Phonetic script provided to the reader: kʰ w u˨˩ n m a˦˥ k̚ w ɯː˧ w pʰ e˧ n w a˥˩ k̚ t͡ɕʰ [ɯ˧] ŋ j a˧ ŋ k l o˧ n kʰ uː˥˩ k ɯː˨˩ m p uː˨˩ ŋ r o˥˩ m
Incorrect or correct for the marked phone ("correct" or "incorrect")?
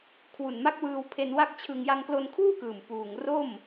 correct